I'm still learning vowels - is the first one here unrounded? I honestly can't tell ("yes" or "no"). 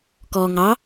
no